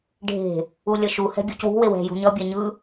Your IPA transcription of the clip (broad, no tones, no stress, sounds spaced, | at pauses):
ɖʱ e̤ | u lʲ ʌ ʃ u h ɛ̤ bʲ u c w ṳ w e w ɛ̤ j ṳ ɲ ʌ bʲ ɛ ɲ ɯ